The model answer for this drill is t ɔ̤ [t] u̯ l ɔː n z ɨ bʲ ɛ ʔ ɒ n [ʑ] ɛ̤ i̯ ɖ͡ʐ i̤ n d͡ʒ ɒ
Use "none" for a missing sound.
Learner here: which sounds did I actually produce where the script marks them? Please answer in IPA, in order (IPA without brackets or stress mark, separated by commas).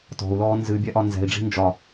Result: none, z